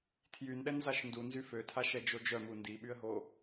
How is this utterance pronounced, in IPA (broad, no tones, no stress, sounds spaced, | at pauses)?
tʰ j y n ɗ ɛ n z a ʃ n d u n z y f ø tʰ a ʃ ɛ d͡ʒ o d͡ʒ œ m u n d i ɓ y ə̯ ɦ o